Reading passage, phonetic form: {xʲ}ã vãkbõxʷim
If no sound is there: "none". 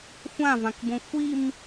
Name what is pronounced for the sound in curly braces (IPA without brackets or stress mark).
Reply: xʷ